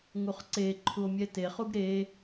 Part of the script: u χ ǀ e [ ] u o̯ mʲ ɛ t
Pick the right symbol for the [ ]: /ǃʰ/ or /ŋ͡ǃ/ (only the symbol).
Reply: ǃʰ